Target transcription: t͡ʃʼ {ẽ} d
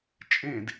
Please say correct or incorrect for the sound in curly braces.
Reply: correct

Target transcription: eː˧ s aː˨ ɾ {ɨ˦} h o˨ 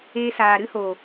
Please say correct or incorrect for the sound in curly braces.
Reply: correct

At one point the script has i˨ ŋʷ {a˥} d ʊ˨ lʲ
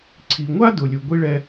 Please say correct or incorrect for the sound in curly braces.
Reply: correct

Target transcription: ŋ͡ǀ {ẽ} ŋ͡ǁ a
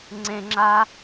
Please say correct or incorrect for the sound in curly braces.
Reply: correct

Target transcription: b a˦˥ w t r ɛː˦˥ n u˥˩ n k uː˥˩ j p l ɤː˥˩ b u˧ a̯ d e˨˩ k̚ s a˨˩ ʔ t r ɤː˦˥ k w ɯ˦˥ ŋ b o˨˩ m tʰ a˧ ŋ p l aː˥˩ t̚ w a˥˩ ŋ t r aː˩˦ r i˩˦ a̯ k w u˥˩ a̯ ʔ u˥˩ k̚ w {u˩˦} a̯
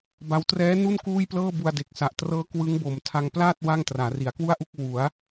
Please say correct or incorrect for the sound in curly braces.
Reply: correct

